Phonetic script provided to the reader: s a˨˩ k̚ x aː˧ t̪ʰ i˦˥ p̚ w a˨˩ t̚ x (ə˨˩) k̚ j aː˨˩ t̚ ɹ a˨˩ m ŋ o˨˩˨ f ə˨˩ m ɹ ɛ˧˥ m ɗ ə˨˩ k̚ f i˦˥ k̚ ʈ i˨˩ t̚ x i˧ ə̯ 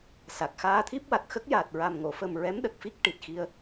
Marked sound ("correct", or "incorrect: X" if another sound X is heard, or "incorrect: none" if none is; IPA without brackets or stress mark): incorrect: ə˦˥